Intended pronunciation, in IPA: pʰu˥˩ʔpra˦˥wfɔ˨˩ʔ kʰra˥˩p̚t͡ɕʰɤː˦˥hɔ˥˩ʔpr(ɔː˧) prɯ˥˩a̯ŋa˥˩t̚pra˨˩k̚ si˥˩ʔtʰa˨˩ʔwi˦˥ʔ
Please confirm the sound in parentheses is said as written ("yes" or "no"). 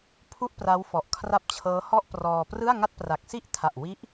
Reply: yes